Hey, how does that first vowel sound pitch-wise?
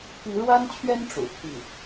rising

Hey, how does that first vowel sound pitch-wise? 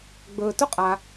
low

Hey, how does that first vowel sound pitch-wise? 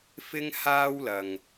high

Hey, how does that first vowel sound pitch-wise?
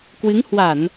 rising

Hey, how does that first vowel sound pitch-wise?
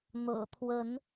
low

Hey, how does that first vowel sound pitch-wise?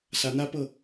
rising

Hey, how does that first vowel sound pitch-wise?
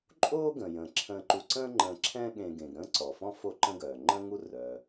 high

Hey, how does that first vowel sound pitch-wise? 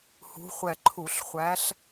rising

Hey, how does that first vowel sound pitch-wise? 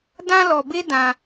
high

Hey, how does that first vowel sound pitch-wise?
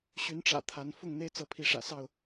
rising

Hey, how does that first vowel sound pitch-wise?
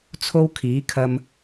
high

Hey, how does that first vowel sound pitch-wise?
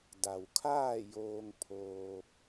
low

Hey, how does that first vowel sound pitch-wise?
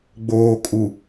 low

